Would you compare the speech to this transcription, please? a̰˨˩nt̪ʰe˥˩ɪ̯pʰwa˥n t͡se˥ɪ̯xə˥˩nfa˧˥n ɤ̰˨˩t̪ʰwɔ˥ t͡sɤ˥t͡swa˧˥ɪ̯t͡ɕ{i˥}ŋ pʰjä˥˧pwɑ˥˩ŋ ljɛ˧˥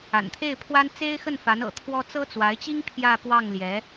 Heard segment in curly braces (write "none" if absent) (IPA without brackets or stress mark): i˥